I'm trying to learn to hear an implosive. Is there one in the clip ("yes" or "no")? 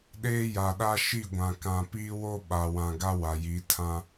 yes